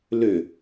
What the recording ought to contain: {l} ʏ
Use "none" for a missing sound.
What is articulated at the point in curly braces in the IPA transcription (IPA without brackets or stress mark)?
l